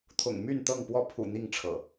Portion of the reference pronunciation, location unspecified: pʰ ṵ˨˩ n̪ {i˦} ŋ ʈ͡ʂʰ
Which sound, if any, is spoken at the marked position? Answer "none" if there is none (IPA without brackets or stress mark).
i˥˨